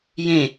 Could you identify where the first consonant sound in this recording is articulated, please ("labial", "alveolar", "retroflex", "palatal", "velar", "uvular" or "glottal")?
palatal